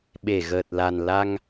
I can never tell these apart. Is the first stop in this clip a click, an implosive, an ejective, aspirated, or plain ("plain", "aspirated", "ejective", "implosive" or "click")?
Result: implosive